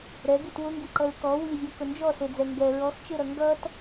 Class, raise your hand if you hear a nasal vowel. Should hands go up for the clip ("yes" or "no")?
no